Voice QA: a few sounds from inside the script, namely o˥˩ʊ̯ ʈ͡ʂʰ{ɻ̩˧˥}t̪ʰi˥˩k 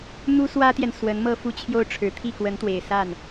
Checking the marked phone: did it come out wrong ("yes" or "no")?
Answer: yes